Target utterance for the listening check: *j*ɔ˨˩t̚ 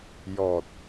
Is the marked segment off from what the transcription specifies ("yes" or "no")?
no